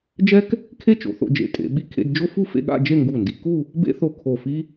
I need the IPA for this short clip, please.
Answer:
d͡ʒɛ˥k | kʰe˥t͡ʃo̰˩˧θo̰˧d͡ʒḛ˧˩ tʼḛ˩˧ɓi˧kʰḛ˧d d͡ʒo˥fu˥˧fḛ˥˧ɠa̰˥˧ d͡ʒe˥˧ŋɡu˧˩ndi˩˧ku˥˧ | bḛ˥θo˧˩ kʰo˧˩fi˥

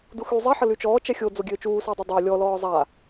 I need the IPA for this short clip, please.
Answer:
duxy zˤɛħə lyt͡ʃɔː t͡ʃɛxʲo d͡zoɡʲøːt͡ʃuːsəː dˤodˤa lʲɔlɔː zˤa

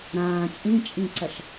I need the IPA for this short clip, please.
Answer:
ɾãː t͡ʃʼĩt͡ʃʼĩǀɐʃ

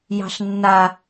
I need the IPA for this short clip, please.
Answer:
jɑ̤ɬnːa

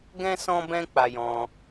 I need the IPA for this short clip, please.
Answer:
ɡɛ̃˦ sɔ̃˦bɛ̃˦ k͡pa˧jɔ̃˧

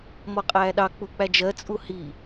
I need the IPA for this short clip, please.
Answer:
mɔqʼæːɗɑ k͡puk͡pæd͡ʒɜ t͡sʼuhi

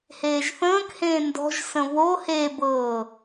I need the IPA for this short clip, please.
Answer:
heːʒθə̃ːkhẽː ndɔ̤ʒsə̃ βo hebɤː

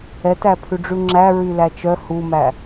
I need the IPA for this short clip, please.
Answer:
ɛtæ pʰʉɖ͡ʐʉŋ͡ǁæ ɹylæt͡ʃœ humæ

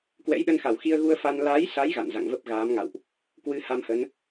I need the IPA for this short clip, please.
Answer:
kwɛ̰˧˥jɗə˧nxa˧˩w xi˧ə̯ɣu˧ə̯fa˧n laː˨˦jsa˨˦j ɣa̰˧˨n za̰˧˨ŋvə˦˥p̚ɣaː˨˦mŋa̰˧˨wʔ | kwɨ˧ ha˧mhə˨˦n

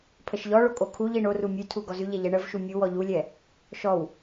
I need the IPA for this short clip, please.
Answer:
pʰəʃʎɔɭo kʼokʰuʎi ɳoru mʲʉtʰu ɡɔzʉʎɛ ʎɛɳəvʃu mʲu wɔʎulʲɛ | ʃɔw

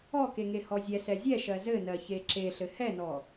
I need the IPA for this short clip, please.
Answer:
ɔkeŋe hɔzʲɛsɛ zʲɛʃɜ zɘnɜ çeǁeɬɘ hɛnɔ

